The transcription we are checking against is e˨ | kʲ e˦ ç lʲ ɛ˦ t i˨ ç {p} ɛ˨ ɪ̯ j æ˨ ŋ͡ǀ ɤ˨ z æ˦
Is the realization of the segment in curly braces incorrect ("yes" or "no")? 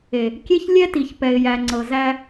no